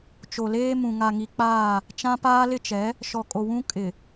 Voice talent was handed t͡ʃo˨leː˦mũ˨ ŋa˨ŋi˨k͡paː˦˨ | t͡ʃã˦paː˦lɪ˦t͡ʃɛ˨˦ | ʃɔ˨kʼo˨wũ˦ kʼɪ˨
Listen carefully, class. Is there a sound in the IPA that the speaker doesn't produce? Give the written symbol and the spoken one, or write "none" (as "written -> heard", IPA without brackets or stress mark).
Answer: none